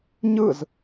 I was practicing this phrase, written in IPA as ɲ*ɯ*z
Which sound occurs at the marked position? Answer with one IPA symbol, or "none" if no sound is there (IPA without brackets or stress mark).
ɯ